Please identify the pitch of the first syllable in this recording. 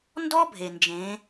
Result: high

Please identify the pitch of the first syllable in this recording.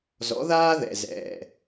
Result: rising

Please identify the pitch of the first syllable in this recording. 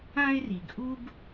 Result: high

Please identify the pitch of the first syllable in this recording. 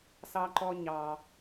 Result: high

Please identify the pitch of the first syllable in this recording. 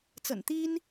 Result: low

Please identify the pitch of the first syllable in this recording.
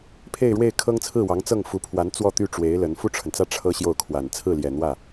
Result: falling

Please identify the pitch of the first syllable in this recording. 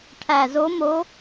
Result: low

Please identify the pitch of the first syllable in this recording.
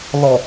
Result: low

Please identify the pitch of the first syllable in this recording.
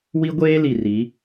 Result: high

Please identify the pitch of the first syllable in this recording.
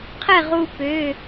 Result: falling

